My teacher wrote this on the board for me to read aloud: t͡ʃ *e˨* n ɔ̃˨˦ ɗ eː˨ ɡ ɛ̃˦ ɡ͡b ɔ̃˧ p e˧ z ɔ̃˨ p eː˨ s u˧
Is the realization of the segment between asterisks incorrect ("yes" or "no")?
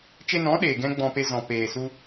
yes